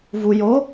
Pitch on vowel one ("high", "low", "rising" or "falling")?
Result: low